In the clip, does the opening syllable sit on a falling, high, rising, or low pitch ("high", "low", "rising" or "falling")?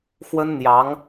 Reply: high